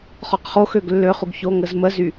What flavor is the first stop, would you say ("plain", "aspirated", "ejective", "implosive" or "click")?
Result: plain